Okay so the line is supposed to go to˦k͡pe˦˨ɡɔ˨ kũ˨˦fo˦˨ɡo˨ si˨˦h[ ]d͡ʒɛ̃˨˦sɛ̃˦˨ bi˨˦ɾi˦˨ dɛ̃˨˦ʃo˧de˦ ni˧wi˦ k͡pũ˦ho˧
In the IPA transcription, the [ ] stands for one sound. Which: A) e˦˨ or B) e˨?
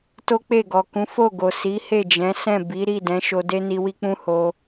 A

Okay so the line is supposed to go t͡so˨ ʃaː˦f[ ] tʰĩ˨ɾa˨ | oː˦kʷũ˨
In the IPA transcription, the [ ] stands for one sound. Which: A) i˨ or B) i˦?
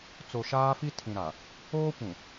B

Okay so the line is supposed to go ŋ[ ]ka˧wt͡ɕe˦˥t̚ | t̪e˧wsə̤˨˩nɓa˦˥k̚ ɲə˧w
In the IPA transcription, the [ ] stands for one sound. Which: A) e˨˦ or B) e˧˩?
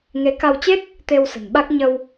A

